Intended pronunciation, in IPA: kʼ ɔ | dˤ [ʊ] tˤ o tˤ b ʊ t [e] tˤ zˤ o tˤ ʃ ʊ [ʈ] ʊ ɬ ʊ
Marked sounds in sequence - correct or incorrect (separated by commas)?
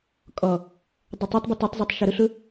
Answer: correct, incorrect, incorrect